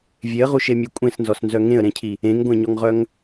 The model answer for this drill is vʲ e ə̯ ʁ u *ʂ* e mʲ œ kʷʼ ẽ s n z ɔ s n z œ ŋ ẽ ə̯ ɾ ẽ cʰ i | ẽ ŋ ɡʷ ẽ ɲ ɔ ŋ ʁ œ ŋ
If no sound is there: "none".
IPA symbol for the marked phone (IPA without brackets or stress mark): ʃ